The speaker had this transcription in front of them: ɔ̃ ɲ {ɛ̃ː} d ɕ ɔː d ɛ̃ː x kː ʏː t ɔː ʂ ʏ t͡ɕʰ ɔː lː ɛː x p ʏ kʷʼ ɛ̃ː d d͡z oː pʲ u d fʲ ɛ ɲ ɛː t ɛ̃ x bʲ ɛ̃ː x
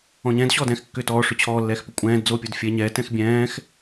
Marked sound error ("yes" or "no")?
no